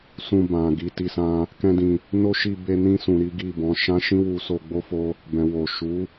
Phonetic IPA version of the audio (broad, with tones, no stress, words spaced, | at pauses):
sũ˧bã˨ɡi˨˦ ti˧sã˦ | kɛ̃˦dĩ˧ | no˦ʃi˧ be˧nĩ˧sũ˨ ɾi˨˦ɡi˦˨bɔ̃˨˦ ʃã˦ʃĩ˦ wu˧so˧ɡ͡bo˦fo˦ | bɛ̃˨wo˨ ʃu˨˦